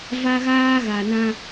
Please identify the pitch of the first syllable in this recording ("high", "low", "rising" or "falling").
high